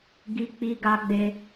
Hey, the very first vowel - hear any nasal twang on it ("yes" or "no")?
no